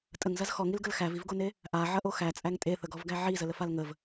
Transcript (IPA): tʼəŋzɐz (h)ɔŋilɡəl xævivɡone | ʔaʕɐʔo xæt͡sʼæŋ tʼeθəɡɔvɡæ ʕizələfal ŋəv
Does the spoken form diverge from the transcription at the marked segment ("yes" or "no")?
yes